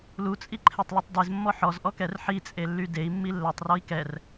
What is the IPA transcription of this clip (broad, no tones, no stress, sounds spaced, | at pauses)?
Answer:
l u t͡sʼ i ǃʰ e tˤ l u tˤ d e z mː ɔ ħ ɔ z ʔ ɔ k ɛ r ħ i t͡sʼ e lː y d e i̯ mː i lː ɛ tˤ r ɔ i̯ k ɛ r